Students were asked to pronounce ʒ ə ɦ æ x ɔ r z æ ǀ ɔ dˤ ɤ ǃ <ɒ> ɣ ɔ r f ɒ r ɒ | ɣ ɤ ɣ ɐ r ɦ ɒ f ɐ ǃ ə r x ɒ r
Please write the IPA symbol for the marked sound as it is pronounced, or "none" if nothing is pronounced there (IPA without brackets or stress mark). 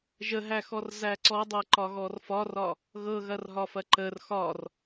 ɒ